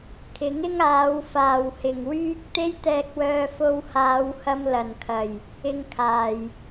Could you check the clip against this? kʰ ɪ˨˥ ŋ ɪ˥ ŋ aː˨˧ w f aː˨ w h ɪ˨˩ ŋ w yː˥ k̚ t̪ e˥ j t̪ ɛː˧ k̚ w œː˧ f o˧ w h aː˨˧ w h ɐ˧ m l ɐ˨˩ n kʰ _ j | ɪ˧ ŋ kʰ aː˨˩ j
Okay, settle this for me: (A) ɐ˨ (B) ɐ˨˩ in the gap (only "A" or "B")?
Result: B